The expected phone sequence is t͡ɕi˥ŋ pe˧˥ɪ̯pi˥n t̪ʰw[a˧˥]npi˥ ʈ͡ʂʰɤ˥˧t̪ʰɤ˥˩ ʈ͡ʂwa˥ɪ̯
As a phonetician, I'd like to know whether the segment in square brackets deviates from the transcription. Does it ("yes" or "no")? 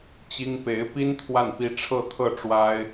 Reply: yes